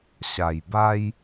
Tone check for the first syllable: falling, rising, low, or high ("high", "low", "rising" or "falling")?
low